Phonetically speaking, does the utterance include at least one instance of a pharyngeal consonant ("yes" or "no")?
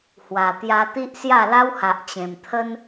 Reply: no